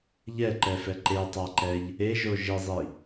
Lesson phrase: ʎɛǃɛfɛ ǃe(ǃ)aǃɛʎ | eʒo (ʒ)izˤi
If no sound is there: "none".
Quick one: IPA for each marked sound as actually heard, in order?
tˤ, ʒ

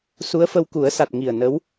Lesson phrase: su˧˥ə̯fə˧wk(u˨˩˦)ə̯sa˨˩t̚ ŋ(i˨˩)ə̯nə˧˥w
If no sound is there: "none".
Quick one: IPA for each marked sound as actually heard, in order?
u˨˩˦, i˨˩

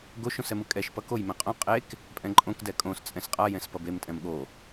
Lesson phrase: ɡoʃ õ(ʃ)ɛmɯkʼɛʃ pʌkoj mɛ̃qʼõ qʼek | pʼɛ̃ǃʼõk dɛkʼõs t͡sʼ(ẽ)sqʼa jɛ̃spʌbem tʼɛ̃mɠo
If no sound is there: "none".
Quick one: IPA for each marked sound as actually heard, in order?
s, ɛ̃

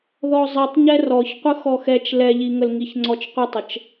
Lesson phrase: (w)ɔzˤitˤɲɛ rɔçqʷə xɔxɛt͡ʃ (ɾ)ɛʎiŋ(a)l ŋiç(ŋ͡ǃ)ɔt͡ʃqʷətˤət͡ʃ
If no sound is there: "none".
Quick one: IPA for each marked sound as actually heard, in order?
ð, l, ə, ŋ͡ǀ

